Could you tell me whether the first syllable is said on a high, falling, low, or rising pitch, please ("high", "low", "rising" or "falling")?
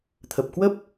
low